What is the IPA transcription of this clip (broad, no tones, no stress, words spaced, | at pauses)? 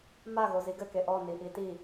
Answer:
maɣo ziɡɘ keʔɔ niʔiti